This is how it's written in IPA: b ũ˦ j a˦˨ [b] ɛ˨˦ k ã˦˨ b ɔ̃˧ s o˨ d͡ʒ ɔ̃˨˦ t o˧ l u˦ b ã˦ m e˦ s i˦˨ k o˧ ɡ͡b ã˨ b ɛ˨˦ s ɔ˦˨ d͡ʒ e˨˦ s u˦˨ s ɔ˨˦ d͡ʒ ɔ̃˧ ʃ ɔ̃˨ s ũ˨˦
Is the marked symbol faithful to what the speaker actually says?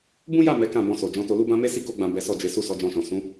no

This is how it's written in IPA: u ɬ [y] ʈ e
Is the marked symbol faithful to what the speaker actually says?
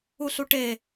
no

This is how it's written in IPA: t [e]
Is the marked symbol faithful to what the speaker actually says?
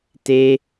yes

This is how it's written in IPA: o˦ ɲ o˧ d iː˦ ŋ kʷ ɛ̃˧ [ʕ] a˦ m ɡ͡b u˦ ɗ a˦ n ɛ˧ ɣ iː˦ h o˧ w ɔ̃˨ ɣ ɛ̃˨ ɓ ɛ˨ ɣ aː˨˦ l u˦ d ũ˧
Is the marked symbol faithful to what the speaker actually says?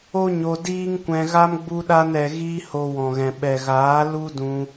no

